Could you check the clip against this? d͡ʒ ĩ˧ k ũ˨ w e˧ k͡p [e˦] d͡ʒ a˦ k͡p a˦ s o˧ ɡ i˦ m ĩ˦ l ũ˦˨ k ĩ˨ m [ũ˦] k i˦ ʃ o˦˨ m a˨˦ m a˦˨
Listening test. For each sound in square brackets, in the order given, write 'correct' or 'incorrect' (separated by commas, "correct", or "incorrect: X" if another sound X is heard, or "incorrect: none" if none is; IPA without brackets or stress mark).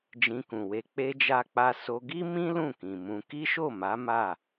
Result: correct, incorrect: ũ˧